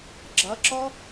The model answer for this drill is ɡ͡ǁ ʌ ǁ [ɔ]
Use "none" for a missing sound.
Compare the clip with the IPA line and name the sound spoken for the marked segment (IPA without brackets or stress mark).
ɔ